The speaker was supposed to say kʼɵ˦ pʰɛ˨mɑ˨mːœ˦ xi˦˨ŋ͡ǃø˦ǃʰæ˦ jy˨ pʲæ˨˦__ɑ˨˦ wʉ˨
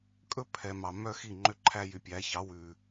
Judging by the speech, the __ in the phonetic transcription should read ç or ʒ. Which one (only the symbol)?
ç